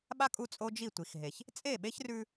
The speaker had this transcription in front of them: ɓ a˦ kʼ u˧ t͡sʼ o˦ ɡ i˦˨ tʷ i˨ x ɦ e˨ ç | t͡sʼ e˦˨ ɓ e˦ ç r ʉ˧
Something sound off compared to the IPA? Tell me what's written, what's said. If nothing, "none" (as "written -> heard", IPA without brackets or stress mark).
ɡ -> d͡ʒ